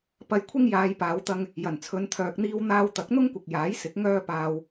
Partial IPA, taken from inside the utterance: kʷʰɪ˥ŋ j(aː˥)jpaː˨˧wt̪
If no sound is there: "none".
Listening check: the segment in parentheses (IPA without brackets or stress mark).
aː˨˧